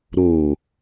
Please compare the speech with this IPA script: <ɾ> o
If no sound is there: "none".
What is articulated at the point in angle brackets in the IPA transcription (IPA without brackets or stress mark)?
ɾ